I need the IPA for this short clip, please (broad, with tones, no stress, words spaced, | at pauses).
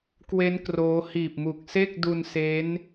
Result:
kwe˦˥n kroː˦˥ hiː˨˩p̚mu˨˩k̚se˥˩k̚ du˧nse˦˥n